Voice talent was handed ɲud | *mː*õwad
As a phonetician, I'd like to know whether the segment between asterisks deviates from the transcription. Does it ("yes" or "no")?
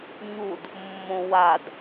no